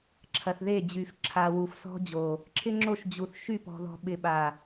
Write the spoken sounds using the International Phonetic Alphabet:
ǁʰɐ˨θðe˦˨d͡ʑy˨f ǁʰa˨ wu˨fsɔ̤˦d͡ʑo˨ | ǁʰɪ˦ŋ͡ǁo˦˨ʃ d͡ʑu˨θ ʃy˦˨pɔ̤˨ðɔ̤˨ ɓɪ˨ɓa˨

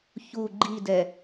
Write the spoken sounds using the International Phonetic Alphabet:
çu ɡ͡ǃidɛ

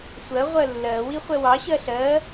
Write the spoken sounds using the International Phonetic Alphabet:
sʷɜ ʁʷɜlːɜ wiχʷɛwɑ ɕɜɬɜ

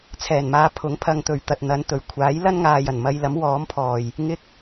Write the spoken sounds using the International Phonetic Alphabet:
t͡sʰɛː˨˩nmaː˧ pʰʊ˨˥ŋpʰɐ˧ŋt̪ɵ˨ɥ t̪ɐ˨t̚n̪ɐ˨˧nt̪ɵ˨˩ɥkʷʰaː˨˥j lɐ˥nŋaː˨jɐ˨˩nmɐ˧j lɐ˨˥mwɔː˨˥mpʰɔː˨˩j | ŋɪ˥k̚

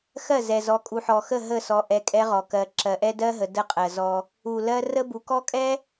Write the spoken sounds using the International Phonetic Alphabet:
xɜ˦˨zɛ˨zɔ˨ kʼu˨ħɔ˨xə˦˨ ɦə˦˨sɔ˨ ʔɛ˨ kʼɛ˦ʁɔ˨kɜ˨˦ ǁɜ˨ʔɛ˦dɜ˦ɦə˨ də˦qʼɜ˨ zɔ˦ | u˨lɜ˦ rə˦bu˨kɔ˦kʼɛ˦

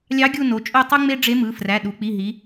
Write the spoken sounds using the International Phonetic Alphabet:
lʲɑ˧˥ ɡʲu˦˨no˩˧t͡ʃʼo˦˨ tˤu˥ŋ͡me˥ ɖ͡ʐe˧˥mɯ˩˧˩fræ˩˧˩ ɗu˩˧k͡pi˩˧˩ɦi˩˧

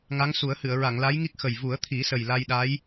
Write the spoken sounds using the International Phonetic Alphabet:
ŋa˧˥ŋsu˨˩˦ə̯hɨ˨˩˨ə̯ ɹa˨˩˨ŋla˧˥jŋi˦˥k̚ xə˨˩j vu˨˩˦ə̯t̪ʰi˨˩˦ sə˨˩jla˧jɗa˧˥j

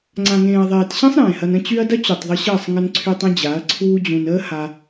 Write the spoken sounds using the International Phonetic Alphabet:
ŋ͡ǀã˨ŋẽː˨ɐ̯ðˤeː˨tɕẽ˦sˤ ɾẽː˨hɐ˧n ə̃˧t͡ɕy˧ɐ̯ dɐ˦t͡ɕu˨tˤ ðˤə˧ɕəː˦˨sˤ ŋə˧nǀʰy˧tˤ ə̃˦d͡ʑa˨˦ɐ̯ǀʰuː˦d͡ʑũ˧n əː˦ha˧

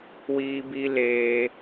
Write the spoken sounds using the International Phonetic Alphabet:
wiː˦bi˦ leː˦

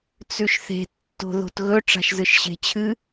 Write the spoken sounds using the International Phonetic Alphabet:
t͡sʉʃθe̤ tːo̤ðo̤tɣɵ ʈ͡ʂa̤ʃzɨʃɕe̤t͡ɕʰɨ

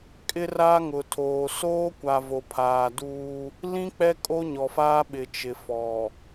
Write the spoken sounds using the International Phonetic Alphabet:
kʼɪ˦raː˦ŋʊ˨tʰoː˨ soː˦ kʷa˨vo˨pʰaː˨duː˦ | lĩ˦k͡pɛ˦ kʼo˦ɲɔ˨faː˦ɓɪ˨ t͡ʃɪ˨fɔ˨

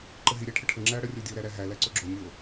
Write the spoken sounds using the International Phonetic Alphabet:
ǃəɦi ɾʲæʈʰəʈʰə ŋ͡ǁæɐ̯ɽə rʲodʲo ɾæɾæɦæ læǀoɡ͡ǁo nʲo

